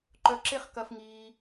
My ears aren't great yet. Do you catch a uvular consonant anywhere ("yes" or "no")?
yes